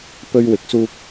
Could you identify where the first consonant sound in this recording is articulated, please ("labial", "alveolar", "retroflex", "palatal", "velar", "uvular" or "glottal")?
labial